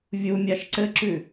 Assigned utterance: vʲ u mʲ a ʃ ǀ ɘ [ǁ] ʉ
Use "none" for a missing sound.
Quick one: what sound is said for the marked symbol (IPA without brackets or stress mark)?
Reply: ǁ